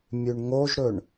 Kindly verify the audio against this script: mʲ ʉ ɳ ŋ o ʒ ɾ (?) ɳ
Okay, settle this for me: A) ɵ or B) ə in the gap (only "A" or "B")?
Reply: A